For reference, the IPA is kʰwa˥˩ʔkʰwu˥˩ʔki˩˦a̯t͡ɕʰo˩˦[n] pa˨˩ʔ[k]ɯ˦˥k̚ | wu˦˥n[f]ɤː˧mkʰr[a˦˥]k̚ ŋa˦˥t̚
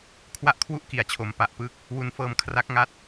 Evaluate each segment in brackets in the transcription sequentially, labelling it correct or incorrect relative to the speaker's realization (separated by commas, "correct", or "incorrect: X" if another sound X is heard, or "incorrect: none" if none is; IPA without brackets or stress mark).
incorrect: m, incorrect: p, correct, correct